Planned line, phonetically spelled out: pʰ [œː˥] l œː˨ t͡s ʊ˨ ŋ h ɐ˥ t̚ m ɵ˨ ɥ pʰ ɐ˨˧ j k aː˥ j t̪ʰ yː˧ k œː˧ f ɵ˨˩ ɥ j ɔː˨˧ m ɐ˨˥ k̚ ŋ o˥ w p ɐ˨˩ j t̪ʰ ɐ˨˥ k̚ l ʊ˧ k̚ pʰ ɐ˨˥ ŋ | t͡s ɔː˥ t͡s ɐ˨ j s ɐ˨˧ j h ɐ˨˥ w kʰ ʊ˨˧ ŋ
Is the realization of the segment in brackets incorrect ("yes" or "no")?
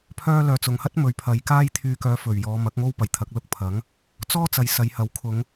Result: yes